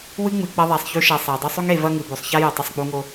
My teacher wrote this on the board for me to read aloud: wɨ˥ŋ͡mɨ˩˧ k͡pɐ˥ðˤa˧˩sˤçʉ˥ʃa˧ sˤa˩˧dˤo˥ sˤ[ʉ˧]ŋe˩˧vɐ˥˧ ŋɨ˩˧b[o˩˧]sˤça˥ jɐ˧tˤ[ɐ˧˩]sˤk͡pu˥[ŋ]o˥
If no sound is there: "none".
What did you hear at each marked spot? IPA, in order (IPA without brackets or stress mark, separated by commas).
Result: ʉ˥, o˩˧, ɐ˥˧, ŋ